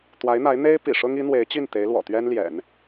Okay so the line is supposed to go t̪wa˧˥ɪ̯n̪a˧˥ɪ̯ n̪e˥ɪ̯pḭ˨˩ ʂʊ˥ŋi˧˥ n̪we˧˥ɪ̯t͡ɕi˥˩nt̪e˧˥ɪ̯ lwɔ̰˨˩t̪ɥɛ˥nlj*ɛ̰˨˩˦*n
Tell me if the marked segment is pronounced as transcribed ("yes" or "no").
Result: yes